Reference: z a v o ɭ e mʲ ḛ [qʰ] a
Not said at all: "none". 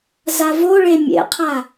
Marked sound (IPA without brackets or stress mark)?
qʰ